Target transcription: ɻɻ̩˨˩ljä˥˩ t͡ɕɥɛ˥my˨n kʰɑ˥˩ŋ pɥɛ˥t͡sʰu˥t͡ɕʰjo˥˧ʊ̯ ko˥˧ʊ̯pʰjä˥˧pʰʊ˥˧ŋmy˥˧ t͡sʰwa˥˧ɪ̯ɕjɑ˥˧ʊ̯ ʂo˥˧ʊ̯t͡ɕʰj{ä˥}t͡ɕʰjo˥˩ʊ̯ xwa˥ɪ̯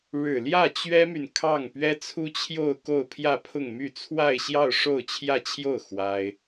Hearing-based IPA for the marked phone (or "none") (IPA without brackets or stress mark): ä˥˧